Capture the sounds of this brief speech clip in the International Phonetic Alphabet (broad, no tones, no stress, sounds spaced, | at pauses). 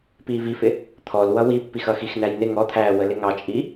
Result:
p iː v i f ɪ | t̪ʰ ɔ l w ʌ w i pː i x ʌ x i x n æ j n ɪ ŋ ɔ t̪ʰ æː w ə l ɪ ŋ ɑ t͡ʃʼ i